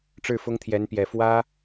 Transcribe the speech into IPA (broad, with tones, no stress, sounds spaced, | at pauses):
ʈ͡ʂ ɻ̩˥˩ f ʊ˥ ŋ t̪ʰ j ɛ˧˥ n p j ɛ˨˩ f w ä˥